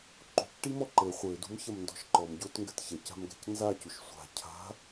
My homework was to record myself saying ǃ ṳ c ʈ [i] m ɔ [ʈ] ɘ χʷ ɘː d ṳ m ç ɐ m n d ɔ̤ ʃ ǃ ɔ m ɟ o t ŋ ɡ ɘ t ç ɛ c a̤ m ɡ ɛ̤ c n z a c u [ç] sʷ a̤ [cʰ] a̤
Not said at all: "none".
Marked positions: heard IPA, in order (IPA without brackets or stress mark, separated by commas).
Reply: i, ǃ, ʃ, cʰ